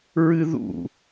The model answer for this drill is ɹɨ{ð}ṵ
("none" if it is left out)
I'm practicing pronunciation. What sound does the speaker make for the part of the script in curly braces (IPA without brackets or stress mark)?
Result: ð